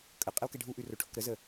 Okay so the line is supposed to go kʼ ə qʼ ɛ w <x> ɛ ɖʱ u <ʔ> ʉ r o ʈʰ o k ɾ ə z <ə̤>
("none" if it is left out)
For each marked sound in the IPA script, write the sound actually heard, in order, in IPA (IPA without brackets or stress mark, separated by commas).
k, ʔ, ə